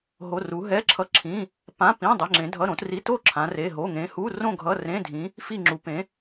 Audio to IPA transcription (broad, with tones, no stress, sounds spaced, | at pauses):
ɦ o˧˥˧ r u˧˥ ɦ ɛ˧˥˧ ǁʰ ʌ˧˥˧ ǁʰ ĩ˧˥˧ | p ã˧˥˧ p ĩ˧˥˧ dˤ e˧˥˧ ŋ͡ǁ ẽ˧˥ dʱ ʌ˧˥˧ ɾ õ˧˥ t r i˧˥˧ t o˥˧ ǁʰ ã˧˥ r e˧˥˧ ɦ o˧˥˧ ŋ ẽ˧˥ h u˧˥˧ r õ˥˧ ɡʱ ʌ˧˥˧ r ẽ˧˥˧ dʱ ĩ˧˥ | f i˥˧ ŋ͡ǁ u˧˥ p ẽ˧˥